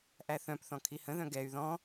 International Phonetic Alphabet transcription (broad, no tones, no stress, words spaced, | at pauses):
ʔæθœ̃pθɔ̃ kʰihə̃ðœ̃ ɡɛy̯ ðɔ̃